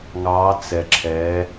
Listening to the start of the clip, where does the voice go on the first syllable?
rising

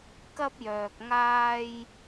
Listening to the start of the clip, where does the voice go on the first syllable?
high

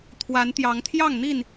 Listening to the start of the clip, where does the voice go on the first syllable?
rising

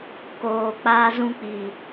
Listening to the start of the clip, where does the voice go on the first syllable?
low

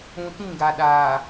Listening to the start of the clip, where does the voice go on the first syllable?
low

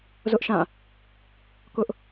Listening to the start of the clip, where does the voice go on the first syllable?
high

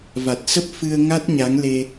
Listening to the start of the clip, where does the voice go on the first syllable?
low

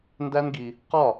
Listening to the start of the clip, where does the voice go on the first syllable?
high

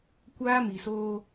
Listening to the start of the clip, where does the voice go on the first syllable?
high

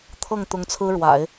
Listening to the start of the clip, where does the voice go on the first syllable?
falling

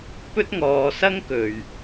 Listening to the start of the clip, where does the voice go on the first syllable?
high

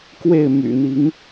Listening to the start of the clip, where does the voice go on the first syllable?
falling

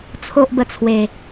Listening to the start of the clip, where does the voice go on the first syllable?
high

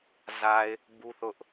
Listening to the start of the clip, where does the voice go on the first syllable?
low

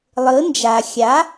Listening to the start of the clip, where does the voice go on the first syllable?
rising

